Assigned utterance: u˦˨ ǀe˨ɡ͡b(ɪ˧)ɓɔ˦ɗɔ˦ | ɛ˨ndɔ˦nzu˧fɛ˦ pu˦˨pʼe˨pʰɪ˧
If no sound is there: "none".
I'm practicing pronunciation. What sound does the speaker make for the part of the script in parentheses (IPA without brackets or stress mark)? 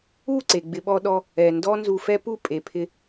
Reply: ɪ˧